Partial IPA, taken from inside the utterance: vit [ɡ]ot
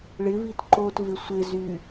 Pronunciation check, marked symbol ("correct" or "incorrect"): incorrect